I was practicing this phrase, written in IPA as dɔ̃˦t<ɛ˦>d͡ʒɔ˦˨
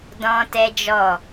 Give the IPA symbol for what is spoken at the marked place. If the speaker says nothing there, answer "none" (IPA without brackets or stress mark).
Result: ɛ˦